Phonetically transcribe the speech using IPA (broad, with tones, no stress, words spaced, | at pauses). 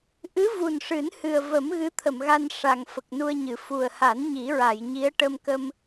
ʔɨ˧˥vu˨˩n ʂɨ˨˩˦nhɨ˨˩ə̯və˨˩˦m ɣɨ˧˥t̪ʰə˨˩˨m ɣa˧nʂa˨˩ŋ fə˨˩k̚nu˧ə̯ɲɨ˨˩˨ fu˨˩ə̯ha˨˩˦n ɲi˨˩˦ɹa˨˩˨jɲi˧˥ə̯ ʈə˧mkə˧m